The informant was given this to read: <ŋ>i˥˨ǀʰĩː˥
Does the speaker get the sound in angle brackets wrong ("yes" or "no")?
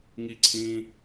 no